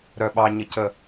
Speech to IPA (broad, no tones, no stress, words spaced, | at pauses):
ɾœɓɑɲəcə